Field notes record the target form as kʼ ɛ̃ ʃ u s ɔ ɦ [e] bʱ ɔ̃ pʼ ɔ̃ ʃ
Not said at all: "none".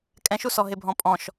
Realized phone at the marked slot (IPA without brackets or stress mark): e